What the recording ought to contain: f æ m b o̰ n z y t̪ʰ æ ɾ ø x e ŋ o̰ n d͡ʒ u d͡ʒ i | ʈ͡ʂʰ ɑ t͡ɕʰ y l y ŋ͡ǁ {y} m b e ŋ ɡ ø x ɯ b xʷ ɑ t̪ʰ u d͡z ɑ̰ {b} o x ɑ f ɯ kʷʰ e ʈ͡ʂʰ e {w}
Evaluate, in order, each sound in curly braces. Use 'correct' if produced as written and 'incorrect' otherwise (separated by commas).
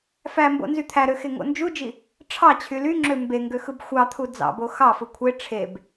incorrect, correct, incorrect